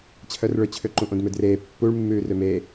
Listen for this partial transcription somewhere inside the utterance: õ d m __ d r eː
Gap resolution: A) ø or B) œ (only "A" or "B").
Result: A